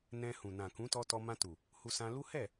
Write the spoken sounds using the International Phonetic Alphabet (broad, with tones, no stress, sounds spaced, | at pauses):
n ɛ̃˧ h ũ˨ n ã˨ k ũ˨˦ t ɔ˧ t ɔ˧ m ã˧ t u˨ | h u˧ s ã˧ l u˦ h ɛ˦˨